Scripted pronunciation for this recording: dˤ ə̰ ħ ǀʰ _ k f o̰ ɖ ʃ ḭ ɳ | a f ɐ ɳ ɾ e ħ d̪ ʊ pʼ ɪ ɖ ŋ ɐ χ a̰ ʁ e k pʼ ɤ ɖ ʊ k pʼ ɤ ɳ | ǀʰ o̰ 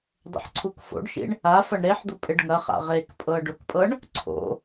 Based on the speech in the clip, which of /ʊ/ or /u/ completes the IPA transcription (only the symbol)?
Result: u